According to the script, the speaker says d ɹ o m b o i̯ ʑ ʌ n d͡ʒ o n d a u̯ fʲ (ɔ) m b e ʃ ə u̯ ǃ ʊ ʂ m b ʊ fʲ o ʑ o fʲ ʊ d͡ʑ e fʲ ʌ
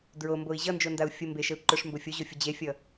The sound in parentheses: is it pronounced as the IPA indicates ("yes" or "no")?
no